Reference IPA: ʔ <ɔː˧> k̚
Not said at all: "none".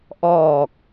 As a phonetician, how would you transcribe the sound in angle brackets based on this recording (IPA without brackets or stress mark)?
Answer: ɔː˨˩